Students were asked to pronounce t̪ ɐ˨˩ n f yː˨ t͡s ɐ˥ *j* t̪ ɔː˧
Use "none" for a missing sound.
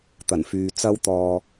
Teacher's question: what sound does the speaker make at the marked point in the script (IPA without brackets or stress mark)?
w